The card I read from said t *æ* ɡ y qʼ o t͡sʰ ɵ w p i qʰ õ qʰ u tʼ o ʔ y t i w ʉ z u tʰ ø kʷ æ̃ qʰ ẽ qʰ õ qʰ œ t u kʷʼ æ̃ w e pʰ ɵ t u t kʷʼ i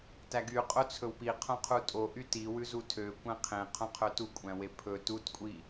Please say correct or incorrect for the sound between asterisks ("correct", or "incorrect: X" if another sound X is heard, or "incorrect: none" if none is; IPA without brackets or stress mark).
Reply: correct